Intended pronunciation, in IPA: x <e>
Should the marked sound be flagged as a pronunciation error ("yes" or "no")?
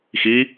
yes